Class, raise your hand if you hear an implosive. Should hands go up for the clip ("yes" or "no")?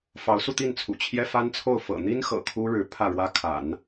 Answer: no